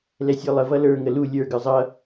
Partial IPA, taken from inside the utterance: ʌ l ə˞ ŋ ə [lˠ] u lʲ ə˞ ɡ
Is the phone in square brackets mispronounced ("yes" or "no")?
yes